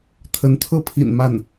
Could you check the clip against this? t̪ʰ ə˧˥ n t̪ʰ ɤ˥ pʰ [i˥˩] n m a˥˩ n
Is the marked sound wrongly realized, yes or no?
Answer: yes